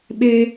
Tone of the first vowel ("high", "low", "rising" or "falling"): high